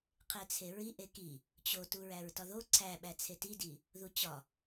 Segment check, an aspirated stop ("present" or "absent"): present